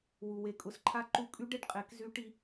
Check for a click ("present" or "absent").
present